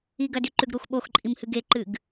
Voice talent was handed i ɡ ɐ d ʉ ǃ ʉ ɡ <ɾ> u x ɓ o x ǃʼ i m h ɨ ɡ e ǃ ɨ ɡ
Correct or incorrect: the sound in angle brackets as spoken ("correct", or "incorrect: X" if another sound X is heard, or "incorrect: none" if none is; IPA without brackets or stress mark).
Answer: correct